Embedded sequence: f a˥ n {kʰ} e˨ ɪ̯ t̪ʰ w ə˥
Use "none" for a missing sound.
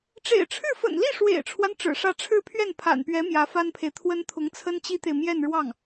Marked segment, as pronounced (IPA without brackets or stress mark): pʰ